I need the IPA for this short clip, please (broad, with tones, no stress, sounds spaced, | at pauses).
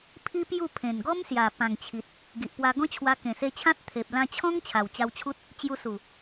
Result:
pʰ i˦ p j u˥˧ pʰ ẽ˨˩ n ɡ ɔ˦ m s j a˨˩ p ã˨˩ ŋ t͡ɕʰ i˨ t̚ | ɡ i˨ ʔ p w a˧ ɡ ɔ̃˦ t͡ɕʰ w a˧ k ẽ˨˩ s e˧ t͡ɕʰ ã˦ t̚ t̪ʰ e˨ p̚ l ã˧ t͡ɕʰ ɔ̃˦ ŋ t͡ɕʰ a˨˩ w t͡ɕ a˧ w t͡ɕʰ u˦ t̚ | t͡ɕ j u˧ s u˨˩